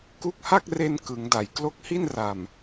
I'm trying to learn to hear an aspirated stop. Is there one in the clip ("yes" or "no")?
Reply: no